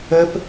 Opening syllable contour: high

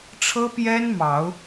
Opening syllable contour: high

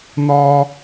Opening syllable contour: high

